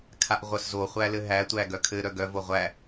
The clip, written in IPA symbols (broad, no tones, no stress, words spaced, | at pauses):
kʰaʔʁʷœszo χʷælɘɦæ tʷæɡœkʰɘ ɾœɡœ voʁʷæ